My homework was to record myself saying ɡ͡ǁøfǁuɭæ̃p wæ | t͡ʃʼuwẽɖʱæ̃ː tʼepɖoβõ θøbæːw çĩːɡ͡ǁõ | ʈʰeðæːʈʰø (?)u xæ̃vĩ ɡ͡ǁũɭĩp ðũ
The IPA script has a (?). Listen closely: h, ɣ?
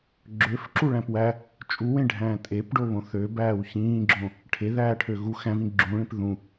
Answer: ɣ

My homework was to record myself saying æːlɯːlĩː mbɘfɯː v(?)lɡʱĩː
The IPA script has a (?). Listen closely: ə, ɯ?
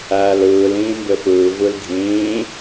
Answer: ɯ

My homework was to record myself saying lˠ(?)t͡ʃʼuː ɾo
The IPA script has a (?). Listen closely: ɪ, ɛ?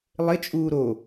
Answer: ɪ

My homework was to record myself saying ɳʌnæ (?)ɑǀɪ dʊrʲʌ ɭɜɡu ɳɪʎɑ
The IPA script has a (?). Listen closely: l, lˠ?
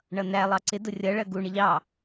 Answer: lˠ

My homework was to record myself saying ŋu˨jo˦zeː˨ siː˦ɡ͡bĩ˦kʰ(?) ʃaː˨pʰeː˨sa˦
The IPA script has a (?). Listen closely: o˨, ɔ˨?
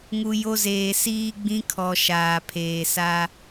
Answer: ɔ˨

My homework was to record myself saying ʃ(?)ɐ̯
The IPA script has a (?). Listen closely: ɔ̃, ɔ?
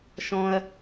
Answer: ɔ̃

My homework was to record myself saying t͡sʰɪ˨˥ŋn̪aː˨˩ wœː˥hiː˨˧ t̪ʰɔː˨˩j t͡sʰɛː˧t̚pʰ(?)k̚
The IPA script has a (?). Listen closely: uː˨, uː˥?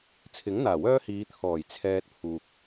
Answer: uː˨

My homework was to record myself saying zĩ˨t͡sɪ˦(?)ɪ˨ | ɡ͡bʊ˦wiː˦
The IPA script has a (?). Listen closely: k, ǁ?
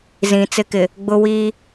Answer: k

